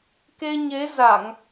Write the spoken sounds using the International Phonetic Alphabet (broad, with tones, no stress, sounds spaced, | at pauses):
k e˧ ɲ e˨˦ z a˧˩˨ ŋ